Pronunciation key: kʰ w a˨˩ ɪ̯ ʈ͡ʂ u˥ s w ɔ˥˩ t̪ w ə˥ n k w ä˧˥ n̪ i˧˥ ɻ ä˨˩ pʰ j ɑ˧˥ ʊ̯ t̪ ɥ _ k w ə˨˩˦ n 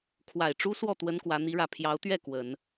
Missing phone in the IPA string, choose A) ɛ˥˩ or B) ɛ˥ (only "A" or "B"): A